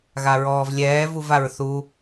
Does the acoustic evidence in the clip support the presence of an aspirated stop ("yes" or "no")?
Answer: no